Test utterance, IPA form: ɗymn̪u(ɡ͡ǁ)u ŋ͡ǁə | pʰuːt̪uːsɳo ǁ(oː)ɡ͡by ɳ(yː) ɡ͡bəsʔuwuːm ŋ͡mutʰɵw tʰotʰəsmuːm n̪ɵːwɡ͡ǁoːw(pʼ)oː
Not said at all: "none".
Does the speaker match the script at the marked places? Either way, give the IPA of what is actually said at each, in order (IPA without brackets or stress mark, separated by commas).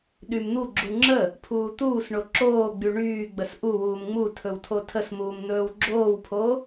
ɡ͡ǁ, oː, yː, pʰ